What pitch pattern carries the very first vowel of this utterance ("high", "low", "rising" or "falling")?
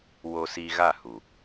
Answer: low